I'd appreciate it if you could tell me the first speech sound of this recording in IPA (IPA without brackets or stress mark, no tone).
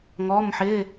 ŋ